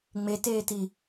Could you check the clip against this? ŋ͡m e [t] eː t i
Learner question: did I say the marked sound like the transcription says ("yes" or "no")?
yes